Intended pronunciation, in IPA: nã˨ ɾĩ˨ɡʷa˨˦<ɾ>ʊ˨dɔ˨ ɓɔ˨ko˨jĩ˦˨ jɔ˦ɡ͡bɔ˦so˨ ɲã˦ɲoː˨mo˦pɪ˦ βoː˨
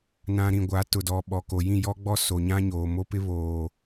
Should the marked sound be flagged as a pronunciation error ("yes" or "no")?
yes